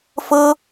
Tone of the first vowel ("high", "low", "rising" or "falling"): high